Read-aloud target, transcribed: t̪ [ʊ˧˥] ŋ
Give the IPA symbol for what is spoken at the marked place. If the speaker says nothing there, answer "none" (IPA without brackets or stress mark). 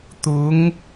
ʊ˧˥